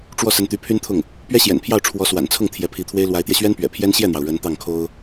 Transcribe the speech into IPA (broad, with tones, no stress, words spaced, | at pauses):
ʈ͡ʂwɔ˥˩ sə˧˥nt̪y˧˥pʰy˥nt̪ʰʊ˥˩ŋ | pɥɛ˥ɕjɛ̰˨˩npʰjɑ˥˩ʊ̯ ʈ͡ʂʰwɔ˧˥swa̰˨˩nt͡sʰʊ˥˩ŋ t̪ʰjɛ˧˥pʰi˧˥t̪ʰwe˥ɪ̯ lwa˧˥ɪ̯t̪jɛ˧ɕɥɛ˥npɥɛ̰˨˩ pʰjɛ˥n ɕjɛ˥˩n̪jɑ˩ʊ̯ ɻə˧˥n t̪ɑ˥˩ŋkʰo˥ʊ̯